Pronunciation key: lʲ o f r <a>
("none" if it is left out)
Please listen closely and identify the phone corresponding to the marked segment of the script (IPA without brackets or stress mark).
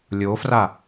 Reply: a